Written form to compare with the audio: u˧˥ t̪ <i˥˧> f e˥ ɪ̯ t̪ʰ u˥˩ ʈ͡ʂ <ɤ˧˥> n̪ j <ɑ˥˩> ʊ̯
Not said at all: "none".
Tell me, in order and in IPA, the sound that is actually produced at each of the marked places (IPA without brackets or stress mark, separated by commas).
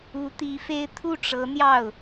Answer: i˧˥, ɤ˧˥, ɑ˥˩